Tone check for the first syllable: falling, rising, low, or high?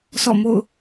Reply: falling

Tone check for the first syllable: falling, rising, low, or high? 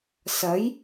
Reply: rising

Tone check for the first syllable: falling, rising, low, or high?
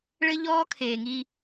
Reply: high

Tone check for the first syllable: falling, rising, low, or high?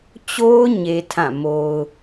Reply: high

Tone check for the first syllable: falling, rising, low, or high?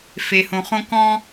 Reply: low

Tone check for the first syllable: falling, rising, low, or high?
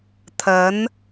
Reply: rising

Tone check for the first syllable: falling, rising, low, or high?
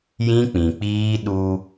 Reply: high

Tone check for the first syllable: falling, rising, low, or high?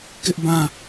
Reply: high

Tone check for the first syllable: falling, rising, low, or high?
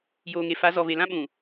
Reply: low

